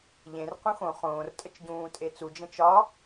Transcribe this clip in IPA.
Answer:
ʎ ẽ r q ũ x õ χ õː r tʼ ə t͡ʃ ɟ ũː tʼ e t͡s u d͡ʒ ə̃ t͡ʃ ɒ

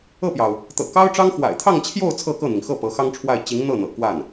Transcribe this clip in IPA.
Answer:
ɤ˥˩ p j ɑ˩ ʊ̯ | t̪ ɤ̰˨˩ k ɑ˥ ʊ̯ ʈ͡ʂ ɑ˥ ŋ x w a̰˨˩ ɪ̯ t̪ʰ ɑ˥˧ ŋ t͡ɕʰ j o˥˧ ʊ̯ t͡sʰ ɤ˥˧ k ɤ˥˩ n̪ i˩ ŋ x ɤ˥˩ p ɤ˧˥ x ɑ˥ ŋ ʈ͡ʂʰ w a˥˩ ɪ̯ t͡ɕ i˧˥ ŋ n̪ ɤ˥˩ n̪ ɤ̰˨˩ k w a˥˩ n

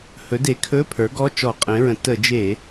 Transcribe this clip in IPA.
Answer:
h ɵ˩˥ d e˩˥ kʰ ɵ˧˥˧ pʰ ə˞˩˥ ɡ ɔ˧˥˧ t͡ʃ ɔ˧˩˧ qʼ ẽ˩˥ ɹ ə̃˩˥ t ə˧˩˧ d͡ʒ e˧˩˧

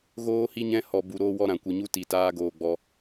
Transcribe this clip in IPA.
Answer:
ɣ oː˦ h i˦ ɲ ɛ̃˦ h ɔ˧ b u˧ ɾ oː˦ w ɔ˦ ɾ ã˧ kʷ ɨ˧ ɲ u˦ t i˧ t aː˦ ɡ oː˧ ɡ͡b ɔ˧

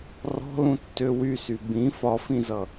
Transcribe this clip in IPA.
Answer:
r ɔ̤ l ũ tː ø w y s y b ĩ f ɒ f ĩ z ʌ

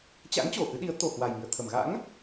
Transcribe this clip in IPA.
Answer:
t͡ɕ a̰˧˥ ŋ t͡ɕ o˨˩ ʔ ɨ˨˦ ɗ i˨˦ ə̯ t̪ o˨˩ h w a˨˩ j m i˧˩ ə̯ t̪ʰ ə˧˩ m ɣ a̰˧˥ ŋ

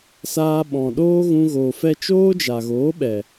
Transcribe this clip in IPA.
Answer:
s aː˧ ɓ ɔ̃˨ ɗ oː˦ ɣ ũ˧ ɣ oː˨ f ɛ˦ t͡ʃ oː˦ d͡ʒ a˨ ɣ oː˨˦ ɓ ɛ˨

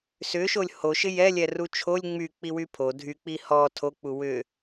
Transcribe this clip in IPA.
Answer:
s ʏ ʃ o lʲ h o ʃ ɪ j ɛ lʲ ɛ r u t͡ʃʰ o lʲ ŋ͡m y k͡p i w y pʰ o dʱ y k͡p i h ɔ tʰ o k͡p u w ʏ

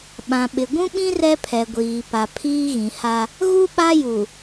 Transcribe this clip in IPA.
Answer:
ɓ ã˨ ɓ ɪ˨ ɡʷ ũ˦ ɓ ĩ˦ r ɛ˦ pʰ ɛ˨ ɡʷ iː˨ p a˨ pʰ iː˦ ɣ ĩ˨ h a˦ | ɣ u˦ ɓ a˦ j u˨

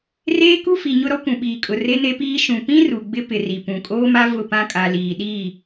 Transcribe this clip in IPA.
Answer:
r eː˦ k u˦ f i˨ ɲ ʊ˦ ɾ ɔ˦ kʷ ũ˨ ɓ iː˨ kʼ ʊ˨ r e˦ n e˦ p iː˦ ʃ ũ˨ p ĩ˦ r u˨ ɡ͡b ɪ˦ p ɪ˨ r i˨ p ũ˨ kʼ oː˦ m a˦ v ʊ˦˨ p ã˦ kʼ a˨ l iː˨ ɗ iː˦˨

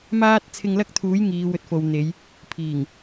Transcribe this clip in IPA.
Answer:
m aː˥ t̚ t͡sʰ ɪ˧ ŋ l ɐ˥ k̚ t̪ʰ uː˨˥ j ŋ iː˨˧ w ɵ˨˥ t̚ f o˨ w n̪ e˨˧ j | pʰ iː˨˩ ŋ

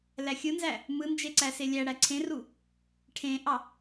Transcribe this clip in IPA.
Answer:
l æ xʲ ɯ n z æ | m ɯ n d͡ʒ e ǀ æ s e lʲ æ ɽ æ ǀʰ ẽ r u | ʈʰ ẽ ʔ ɑ

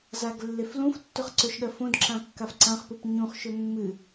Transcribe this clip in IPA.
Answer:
z a ɡ lː e f l ũ f tː ɵ χ ǀ ɵ ʃ ɠ ɜ f õ d ǁ ã kː a f ǀ ã χ p u p ɲ ũ χ ʃ ɵ mː ɨ

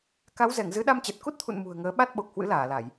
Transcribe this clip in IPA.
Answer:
k a˨˦ w z ɛ˧˩ ŋ z ɨ˨˦ ɗ a˧ m t͡ɕ ɛ˨˩ t̚ k u˦˥ t̚ t̪ʰ ṵ˧˨ n m ṳ˨˩ ə̯ ŋ əː˨˦ ɓ a˦˥ t̚ ɓ o˨˩ k̚ h w ɨ̰˧˥ l aː˧˩ l a˧˩˨ j

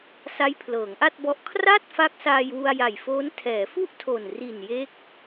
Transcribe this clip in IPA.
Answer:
s a˦˥ j pʰ l ɤː˩˦ ŋ ʔ a˥˩ t̚ b ɔ˦˥ ʔ kʰ r a˥˩ t̚ f a˦˥ k̚ s aː˧ j w u˧ a̯ j a˨˩ j f oː˦˥ n tʰ ɛː˩˦ f u˥˩ ʔ tʰ o˨˩ n r i˨˩ n j e˦˥ k̚

